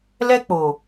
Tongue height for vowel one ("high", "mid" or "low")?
mid